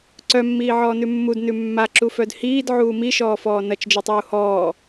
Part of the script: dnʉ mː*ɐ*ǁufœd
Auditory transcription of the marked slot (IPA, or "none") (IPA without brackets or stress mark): a